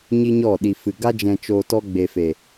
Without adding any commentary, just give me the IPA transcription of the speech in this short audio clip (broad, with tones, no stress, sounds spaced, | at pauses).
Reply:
ɲ i˦ ɲ ɔ˦˨ ɗ i˨ f ɨ˨ ɡ a˧ d͡ʒ ɛ̃˨ t͡ʃ oː˨ t ɔ˧ ɡ͡b e˨ f e˨